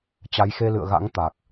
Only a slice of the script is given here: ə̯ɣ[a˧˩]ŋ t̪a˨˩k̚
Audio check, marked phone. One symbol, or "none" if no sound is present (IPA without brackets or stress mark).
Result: a̰˧˥